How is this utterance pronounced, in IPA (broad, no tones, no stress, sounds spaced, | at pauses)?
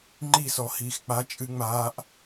ŋ͡ǃ i s ɔ h iː x k͡p a t͡ʃʼ ɨ ŋ͡m aː ʔ